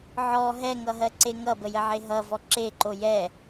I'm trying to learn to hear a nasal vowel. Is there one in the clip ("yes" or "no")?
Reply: no